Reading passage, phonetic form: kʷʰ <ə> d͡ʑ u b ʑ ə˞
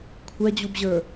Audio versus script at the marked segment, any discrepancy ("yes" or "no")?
yes